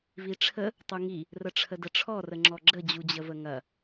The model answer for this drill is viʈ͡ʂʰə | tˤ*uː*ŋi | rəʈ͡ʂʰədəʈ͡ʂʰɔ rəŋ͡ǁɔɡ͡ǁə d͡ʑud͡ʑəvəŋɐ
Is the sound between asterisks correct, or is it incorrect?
incorrect: u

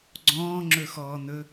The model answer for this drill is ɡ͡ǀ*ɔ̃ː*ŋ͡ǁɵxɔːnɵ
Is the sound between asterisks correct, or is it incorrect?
correct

